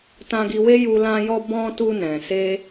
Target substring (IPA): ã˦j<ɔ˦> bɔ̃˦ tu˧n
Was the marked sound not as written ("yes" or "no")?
no